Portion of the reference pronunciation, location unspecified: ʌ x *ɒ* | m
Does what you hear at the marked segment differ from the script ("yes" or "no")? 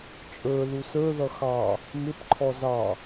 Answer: yes